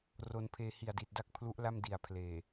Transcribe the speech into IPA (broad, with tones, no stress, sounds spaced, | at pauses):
r o˧ n pʰ eː˧ h i˨˩ a̯ d i˨˩ t̚ d a˥˩ k̚ pʰ l u˦˥ ʔ l a˥˩ m d i˨˩ a̯ pʰ l eː˨˩